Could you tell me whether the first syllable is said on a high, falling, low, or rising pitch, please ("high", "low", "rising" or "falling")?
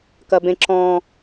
high